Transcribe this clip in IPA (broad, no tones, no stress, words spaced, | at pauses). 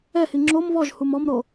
ɛhi ŋ͡ǁom βɔʒhum ɔmɾo